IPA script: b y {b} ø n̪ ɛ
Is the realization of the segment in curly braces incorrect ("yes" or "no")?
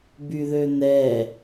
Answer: yes